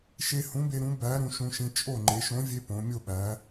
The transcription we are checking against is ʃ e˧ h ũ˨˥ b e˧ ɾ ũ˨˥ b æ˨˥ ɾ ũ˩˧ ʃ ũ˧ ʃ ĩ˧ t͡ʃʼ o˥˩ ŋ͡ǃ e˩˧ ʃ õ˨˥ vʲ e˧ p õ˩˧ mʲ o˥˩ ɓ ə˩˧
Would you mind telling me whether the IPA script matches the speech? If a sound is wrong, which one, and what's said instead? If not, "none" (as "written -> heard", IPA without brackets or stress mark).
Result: ə˩˧ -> æ˩˧